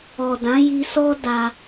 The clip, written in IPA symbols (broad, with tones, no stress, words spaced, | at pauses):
ɔ˨dã˨˦ji˧sɔ˦ da˧